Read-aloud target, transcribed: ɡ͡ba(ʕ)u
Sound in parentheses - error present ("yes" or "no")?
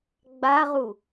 yes